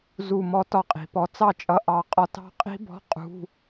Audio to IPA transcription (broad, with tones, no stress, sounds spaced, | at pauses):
z u˧˩ m ɔ˦˥ t ɒ˥˩ qʼ i̤˩˧ p ɔ˧˩ t͡s ɑ˥˩ t͡ʃʼ ʌ˧ ʔ ɑ˧˩ qʼ ɒ˦˥ t ɑ̤˦˥ qʼ i̤˦˥ b ɔ̤˧˥˧ qʼ ṳ˧˥˧